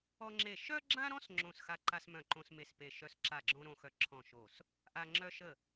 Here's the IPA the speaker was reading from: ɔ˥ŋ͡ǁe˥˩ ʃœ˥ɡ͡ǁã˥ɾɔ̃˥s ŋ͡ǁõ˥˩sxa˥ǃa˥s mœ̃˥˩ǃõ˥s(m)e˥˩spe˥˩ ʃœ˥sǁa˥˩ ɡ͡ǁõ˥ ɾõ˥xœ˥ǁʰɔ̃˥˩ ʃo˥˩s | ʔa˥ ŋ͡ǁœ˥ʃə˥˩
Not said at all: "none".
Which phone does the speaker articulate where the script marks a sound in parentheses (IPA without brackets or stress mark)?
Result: m